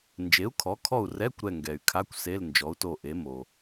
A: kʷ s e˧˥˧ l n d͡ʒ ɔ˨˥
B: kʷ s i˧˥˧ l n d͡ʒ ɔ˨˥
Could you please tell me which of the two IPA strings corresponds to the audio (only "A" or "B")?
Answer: A